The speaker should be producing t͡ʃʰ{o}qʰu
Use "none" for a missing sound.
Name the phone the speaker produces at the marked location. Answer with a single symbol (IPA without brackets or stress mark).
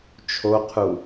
o